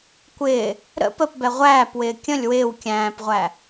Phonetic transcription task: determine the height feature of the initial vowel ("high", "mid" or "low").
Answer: high